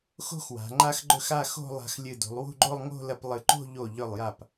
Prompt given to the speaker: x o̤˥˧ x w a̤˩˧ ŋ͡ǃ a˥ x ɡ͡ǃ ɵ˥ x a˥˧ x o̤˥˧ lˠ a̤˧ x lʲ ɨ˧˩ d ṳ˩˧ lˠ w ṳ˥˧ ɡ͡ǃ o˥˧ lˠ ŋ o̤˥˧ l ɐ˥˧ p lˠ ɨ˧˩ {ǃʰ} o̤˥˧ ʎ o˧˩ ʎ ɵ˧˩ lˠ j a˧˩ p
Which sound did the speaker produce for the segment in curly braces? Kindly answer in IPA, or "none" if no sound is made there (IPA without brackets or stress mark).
ǃ